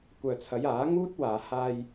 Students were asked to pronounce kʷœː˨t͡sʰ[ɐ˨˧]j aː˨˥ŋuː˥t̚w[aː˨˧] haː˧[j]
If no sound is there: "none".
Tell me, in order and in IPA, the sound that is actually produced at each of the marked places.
ɐ˨˧, aː˨˧, j

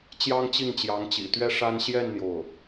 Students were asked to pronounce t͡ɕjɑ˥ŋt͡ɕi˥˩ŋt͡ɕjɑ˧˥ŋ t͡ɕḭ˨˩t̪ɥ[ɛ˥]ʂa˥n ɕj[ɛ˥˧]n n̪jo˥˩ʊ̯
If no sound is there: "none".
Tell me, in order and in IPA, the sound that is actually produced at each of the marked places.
ɛ˥, ɛ˥˧

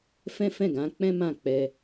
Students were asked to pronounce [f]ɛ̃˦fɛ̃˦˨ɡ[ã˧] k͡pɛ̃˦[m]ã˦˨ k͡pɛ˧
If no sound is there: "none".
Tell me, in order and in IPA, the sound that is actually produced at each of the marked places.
f, ã˨˦, m

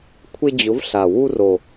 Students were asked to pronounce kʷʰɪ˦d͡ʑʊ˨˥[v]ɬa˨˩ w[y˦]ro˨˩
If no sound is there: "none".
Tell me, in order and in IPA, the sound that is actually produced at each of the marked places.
v, u˦

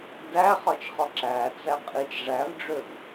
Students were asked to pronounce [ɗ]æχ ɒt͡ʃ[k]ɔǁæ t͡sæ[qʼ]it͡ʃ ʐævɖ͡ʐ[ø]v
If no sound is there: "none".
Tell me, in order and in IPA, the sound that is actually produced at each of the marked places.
d, χ, qʼ, ø

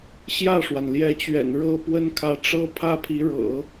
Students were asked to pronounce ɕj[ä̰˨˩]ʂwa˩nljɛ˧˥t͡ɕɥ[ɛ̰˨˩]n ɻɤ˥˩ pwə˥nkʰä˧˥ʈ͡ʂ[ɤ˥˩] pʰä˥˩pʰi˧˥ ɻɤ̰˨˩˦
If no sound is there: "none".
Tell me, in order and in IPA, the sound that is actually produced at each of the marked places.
ä˥˩, ɛ̰˨˩, ɤ˥

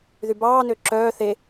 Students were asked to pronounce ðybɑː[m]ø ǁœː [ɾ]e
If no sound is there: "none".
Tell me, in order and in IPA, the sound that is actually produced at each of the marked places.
n, θ

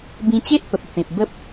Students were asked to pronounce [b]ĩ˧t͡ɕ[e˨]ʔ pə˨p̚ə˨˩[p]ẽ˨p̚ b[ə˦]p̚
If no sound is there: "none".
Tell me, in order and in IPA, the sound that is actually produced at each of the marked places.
b, e˦, p, ə˦

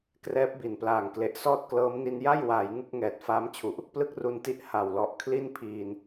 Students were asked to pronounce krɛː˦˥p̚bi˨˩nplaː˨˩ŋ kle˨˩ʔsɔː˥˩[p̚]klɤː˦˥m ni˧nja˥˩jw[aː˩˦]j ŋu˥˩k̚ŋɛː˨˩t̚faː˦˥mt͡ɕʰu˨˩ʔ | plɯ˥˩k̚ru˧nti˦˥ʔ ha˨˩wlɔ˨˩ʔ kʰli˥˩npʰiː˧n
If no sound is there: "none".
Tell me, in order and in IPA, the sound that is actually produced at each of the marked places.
t̚, aː˩˦

